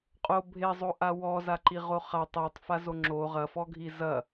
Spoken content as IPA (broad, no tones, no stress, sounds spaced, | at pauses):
qʼ o bʱ e zˤ o ʔ a w ɔ z a ǃ i ʁ o χ a tˤ e tˤ f a z o ŋ͡ǁ o ʁ ɐ f ɔ ɡʱ i z ɐ